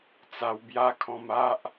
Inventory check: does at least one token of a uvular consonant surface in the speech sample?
no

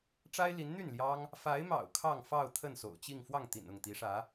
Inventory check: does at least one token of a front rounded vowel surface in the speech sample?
yes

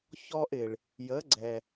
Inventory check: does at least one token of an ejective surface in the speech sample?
no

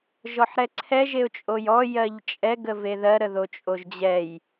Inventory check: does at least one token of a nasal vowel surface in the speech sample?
no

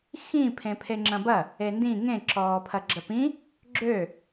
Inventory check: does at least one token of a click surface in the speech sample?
yes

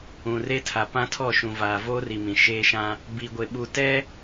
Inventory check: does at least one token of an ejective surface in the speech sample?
no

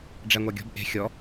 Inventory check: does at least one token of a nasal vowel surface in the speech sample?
no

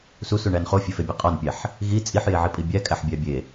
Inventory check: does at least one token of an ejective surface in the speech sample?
yes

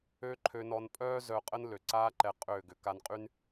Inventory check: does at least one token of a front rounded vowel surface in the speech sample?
yes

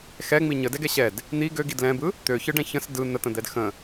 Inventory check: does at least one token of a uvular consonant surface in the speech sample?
no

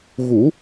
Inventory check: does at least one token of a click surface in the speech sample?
no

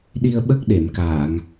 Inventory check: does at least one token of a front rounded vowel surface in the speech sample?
no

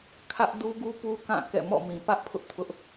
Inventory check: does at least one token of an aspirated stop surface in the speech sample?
yes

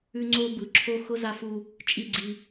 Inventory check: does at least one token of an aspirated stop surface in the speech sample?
yes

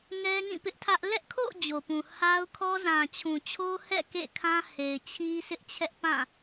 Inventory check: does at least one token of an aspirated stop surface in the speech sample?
yes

